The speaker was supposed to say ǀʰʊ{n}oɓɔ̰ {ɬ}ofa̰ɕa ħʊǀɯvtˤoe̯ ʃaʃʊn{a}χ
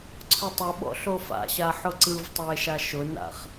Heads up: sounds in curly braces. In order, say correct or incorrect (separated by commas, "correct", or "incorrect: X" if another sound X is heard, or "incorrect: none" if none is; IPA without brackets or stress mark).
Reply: incorrect: tˤ, correct, incorrect: a̰